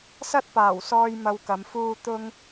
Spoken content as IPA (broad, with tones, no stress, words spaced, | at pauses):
sɐ˥t̚paː˨˩wsɔː˧j mɐ˧wkɐ˨˧m fuː˧ t̪ʊ˥ŋ